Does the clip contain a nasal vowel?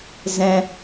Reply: yes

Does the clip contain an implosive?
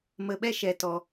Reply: yes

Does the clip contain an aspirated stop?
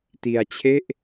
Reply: yes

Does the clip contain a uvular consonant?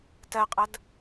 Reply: yes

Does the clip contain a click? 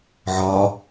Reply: no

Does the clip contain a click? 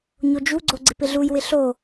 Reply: yes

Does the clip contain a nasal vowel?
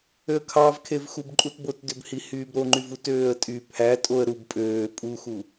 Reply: no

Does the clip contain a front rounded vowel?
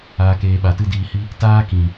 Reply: no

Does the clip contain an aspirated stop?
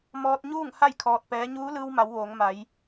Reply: yes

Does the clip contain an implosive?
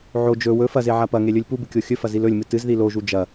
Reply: no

